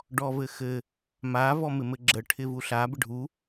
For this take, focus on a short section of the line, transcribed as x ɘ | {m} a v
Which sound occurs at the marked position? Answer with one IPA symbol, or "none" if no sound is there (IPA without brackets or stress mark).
m